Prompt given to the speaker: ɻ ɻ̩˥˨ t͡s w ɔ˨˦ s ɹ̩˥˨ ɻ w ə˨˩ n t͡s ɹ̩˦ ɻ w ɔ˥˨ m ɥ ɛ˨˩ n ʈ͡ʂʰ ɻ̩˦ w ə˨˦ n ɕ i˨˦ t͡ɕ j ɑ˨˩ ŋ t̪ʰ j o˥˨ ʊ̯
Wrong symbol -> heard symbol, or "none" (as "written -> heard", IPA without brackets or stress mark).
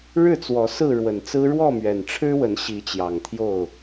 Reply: none